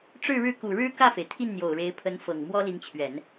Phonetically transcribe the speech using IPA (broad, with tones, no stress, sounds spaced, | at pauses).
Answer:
ʈ͡ʂ ɻ̩˥˧ ɻ ɻ̩˥˩ k u˨˩ ɻ ɻ̩˥ k ä˥˩ f e˩ ɪ̯ t̪ʰ i˥˩ n n̪ j o˨˩ ʊ̯ ɻ e˧˥ ɪ̯ pʰ ə˧˥ n f ɤ˨˩ ŋ m w ɔ˥ l i˧˥ ŋ t͡ɕʰ ɥ ɛ˨˩˦ n